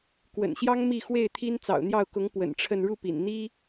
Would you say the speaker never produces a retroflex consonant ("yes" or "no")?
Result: no